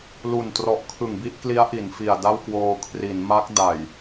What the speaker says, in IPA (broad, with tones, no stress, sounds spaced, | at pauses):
l u˨˩ n t r ɔ˨˩ ʔ kʰ ɯ˨˩ ŋ b i˥˩ ʔ k l i˦˥ a̯ ʔ i˩˦ n f i˨˩ a̯ d a˥˩ w k w oː˧ kʰ r i˩˦ n m a˦˥ k̚ d a˨˩ j